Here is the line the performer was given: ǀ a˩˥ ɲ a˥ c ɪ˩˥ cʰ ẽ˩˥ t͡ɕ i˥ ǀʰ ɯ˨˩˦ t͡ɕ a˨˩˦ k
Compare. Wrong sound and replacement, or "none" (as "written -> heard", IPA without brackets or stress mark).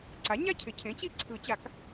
c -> cʰ